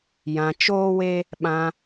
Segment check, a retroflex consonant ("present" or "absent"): absent